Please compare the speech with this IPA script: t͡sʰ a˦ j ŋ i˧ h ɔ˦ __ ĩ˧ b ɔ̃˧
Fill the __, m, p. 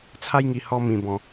m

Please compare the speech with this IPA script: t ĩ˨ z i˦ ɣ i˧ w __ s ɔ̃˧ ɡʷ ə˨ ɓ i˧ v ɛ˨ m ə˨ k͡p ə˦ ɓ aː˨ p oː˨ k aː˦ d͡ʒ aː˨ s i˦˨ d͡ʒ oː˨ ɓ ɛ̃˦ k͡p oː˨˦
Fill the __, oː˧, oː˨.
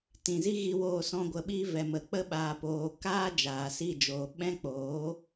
oː˧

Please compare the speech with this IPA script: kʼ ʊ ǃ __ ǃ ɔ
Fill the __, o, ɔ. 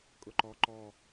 ɔ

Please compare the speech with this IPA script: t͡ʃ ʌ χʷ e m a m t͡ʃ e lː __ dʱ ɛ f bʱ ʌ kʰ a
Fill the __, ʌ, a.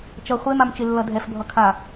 ʌ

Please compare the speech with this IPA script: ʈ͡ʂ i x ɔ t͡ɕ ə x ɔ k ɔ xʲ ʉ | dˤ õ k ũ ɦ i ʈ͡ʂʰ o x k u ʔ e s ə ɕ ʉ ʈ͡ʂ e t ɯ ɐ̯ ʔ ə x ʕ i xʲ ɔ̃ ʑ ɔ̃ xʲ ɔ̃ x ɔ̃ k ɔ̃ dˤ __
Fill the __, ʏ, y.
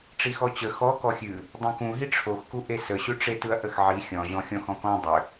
ʏ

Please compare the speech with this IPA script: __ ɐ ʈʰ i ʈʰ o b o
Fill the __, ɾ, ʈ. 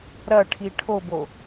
ɾ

